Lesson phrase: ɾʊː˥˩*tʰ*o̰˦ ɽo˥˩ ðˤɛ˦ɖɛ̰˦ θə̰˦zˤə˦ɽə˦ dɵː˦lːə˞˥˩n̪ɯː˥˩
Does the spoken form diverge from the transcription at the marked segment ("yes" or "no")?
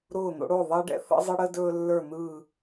yes